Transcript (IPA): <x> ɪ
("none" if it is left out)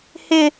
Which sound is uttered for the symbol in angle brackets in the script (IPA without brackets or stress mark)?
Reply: h